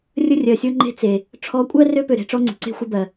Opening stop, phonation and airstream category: click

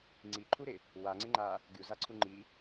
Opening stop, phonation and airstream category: click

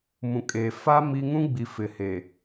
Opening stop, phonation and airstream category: ejective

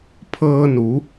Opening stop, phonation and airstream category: aspirated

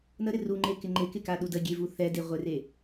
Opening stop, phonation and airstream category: click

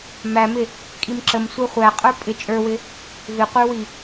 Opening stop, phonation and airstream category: ejective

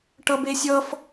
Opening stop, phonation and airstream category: plain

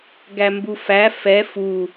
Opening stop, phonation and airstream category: plain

